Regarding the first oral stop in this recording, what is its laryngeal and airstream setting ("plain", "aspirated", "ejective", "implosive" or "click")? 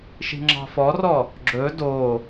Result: click